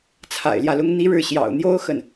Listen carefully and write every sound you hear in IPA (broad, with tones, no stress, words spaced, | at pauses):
t͡sʰa̰˨˩ɪ̯ ljä˥˩lʊ˥ŋ n̪i˥ɻɻ̩˥˩ ɕjɑ̰˨˩ʊ̯n̪jo˥ʊ̯ xə˥˩n